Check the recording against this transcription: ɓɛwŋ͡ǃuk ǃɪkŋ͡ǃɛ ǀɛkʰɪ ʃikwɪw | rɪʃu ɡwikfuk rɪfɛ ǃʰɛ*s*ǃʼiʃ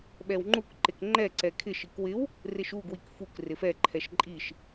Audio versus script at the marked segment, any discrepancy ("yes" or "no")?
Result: yes